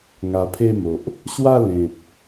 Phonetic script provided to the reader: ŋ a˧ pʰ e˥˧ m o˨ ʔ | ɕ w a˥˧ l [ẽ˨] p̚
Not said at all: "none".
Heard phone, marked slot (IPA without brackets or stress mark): ẽ˨